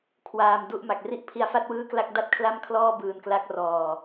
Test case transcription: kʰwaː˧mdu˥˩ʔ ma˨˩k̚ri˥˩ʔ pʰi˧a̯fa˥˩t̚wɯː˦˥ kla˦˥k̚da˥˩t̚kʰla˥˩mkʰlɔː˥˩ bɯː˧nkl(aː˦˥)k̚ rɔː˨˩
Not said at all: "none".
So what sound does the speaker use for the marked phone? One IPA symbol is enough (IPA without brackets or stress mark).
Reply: a˦˥